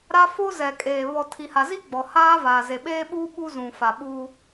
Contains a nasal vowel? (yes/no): yes